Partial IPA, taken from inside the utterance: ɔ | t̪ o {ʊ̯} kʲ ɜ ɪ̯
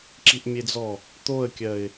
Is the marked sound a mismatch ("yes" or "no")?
yes